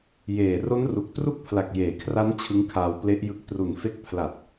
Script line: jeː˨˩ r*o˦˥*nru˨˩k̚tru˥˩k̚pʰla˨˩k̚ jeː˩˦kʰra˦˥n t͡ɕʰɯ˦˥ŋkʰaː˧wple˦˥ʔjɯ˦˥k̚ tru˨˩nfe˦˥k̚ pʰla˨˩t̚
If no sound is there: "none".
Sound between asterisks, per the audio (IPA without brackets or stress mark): o˦˥